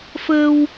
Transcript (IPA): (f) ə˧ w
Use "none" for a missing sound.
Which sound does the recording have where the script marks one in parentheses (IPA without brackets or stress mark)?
f